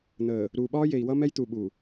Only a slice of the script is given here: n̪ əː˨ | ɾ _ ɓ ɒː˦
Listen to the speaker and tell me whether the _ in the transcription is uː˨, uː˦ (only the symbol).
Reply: uː˨